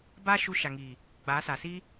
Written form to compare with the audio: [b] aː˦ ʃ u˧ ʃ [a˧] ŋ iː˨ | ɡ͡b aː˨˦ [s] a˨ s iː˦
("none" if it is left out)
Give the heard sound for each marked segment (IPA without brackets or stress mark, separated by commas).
b, a˨, s